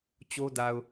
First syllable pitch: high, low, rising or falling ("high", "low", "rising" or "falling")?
high